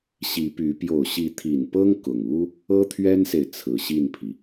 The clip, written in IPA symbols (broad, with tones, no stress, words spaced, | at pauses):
ɕi˧˥py˧˥ pjo˨˩ʊ̯ɕi˧˥t̪ʰi˨˩npɤ˥ŋ kʊ˨˩ŋu˥ | ɤ˥t̪ʰɥɛ˥nse˨ɪ̯ t͡sʰɹ̩˨˩ɕi˥˩npʰi˩